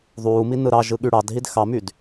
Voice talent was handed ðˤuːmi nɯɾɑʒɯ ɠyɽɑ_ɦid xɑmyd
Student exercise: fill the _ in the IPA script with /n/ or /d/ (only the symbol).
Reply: d